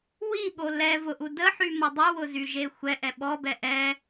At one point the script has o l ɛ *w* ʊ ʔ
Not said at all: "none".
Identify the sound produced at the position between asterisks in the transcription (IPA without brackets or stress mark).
v